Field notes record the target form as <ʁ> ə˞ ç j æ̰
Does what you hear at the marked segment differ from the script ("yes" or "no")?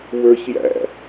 yes